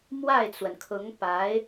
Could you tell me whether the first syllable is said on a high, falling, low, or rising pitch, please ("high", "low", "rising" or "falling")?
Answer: falling